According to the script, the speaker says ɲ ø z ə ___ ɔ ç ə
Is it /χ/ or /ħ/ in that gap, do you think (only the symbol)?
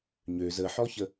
ħ